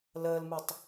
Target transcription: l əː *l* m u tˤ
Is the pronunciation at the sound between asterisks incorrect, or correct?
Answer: correct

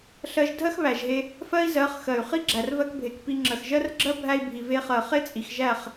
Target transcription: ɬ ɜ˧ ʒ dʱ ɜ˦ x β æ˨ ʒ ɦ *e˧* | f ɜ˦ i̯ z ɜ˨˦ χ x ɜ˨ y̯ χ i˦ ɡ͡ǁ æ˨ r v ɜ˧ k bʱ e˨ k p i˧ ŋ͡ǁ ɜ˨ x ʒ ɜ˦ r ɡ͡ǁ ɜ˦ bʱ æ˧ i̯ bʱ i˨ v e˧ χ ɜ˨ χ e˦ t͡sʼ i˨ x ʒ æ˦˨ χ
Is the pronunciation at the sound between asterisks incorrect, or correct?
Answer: correct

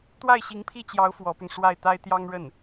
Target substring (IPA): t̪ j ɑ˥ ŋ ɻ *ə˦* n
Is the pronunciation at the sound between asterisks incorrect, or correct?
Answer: incorrect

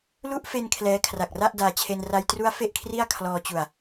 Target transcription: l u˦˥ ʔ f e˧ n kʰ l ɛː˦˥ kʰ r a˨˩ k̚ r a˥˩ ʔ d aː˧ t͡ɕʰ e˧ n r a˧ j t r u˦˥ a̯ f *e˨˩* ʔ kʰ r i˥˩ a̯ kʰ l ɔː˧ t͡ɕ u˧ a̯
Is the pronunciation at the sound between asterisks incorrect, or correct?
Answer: incorrect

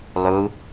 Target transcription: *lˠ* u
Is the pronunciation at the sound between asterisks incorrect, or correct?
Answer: correct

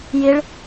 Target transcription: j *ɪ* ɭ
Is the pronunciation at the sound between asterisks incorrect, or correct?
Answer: correct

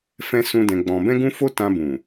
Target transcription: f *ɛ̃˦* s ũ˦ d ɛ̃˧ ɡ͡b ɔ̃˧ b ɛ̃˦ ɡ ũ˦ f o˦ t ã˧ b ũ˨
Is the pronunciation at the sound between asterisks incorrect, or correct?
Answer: correct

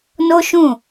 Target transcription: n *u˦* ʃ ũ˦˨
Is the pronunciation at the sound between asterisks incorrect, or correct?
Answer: incorrect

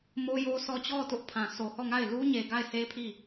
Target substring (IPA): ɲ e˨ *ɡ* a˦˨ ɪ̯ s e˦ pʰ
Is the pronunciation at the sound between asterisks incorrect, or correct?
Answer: correct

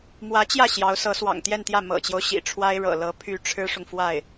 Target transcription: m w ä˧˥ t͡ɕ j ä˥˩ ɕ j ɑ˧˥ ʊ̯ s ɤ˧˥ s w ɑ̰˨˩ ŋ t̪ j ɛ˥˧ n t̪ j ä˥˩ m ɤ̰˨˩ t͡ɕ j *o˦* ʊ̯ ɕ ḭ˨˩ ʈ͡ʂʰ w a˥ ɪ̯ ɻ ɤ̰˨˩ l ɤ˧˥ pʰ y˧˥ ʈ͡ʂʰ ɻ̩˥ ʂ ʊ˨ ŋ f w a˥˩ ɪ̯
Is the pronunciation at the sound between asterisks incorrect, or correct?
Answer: correct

